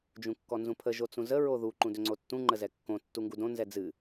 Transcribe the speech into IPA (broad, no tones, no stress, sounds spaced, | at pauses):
d͡ʒ ũ kː ɔ n z ũ pʰ ə ʒ o t͡s ũ z ə ɹ o ð u ǃ ũ d ʏ ŋ͡ǀ o tː ũ ŋ͡ǃ ə z ɛ kː õ tː u ŋ ɡ u d õ n z ɛ d͡z ɨ